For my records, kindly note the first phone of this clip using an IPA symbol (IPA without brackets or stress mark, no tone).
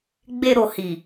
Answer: ɡ͡b